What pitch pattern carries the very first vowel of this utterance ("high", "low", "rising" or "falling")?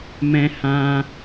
high